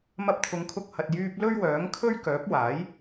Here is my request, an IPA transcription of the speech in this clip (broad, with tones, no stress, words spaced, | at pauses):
mɐ˧p̚t̪ʰʊ˨˧ŋkʰʊ˧k̚hɐ˨t̚ jyː˧p̚ lɵ˥ɥwœː˨˥ŋkʰɵ˥ɥkœː˨˥p̚ waː˨˥j